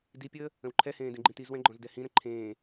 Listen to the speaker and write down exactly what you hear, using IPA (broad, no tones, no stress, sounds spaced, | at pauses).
d i pʲ əː | ə̃ w ǃʰ ɛ h ẽː d ẽ ɡ͡ǃ ĩ t i z w ɛ̃ ɡ͡ǃ ɔ̃ z d ɛ h ĩ ɾ ə̃ ǃʰ ẽː